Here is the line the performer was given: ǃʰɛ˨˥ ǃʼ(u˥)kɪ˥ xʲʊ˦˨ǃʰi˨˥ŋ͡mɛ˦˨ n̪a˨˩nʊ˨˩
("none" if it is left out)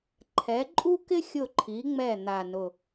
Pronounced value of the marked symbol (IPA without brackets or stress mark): u˥